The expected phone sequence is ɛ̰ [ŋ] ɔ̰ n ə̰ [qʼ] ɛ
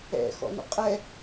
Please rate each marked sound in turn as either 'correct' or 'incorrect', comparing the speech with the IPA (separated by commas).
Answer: incorrect, correct